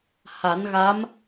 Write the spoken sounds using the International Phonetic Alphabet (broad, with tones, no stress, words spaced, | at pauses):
ha˨˩˦nɣa˧˥m